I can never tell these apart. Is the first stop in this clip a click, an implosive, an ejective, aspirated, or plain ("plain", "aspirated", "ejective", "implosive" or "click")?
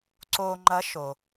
click